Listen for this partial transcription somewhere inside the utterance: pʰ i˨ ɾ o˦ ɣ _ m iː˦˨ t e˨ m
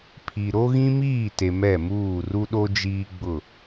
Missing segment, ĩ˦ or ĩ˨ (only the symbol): ĩ˦